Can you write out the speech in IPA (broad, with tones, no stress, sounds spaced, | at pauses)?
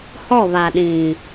h ɔ˦˨ β a˨ ɗ ĩ˨